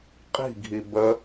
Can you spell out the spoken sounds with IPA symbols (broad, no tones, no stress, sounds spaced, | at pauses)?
qʼ i̤ ɡʱ i b ə